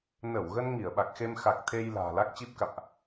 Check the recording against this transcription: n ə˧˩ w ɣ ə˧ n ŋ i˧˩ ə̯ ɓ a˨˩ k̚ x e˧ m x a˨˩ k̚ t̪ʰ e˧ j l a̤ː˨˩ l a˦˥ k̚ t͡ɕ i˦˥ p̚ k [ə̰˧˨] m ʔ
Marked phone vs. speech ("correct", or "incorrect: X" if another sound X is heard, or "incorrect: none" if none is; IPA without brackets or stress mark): incorrect: a̰˧˨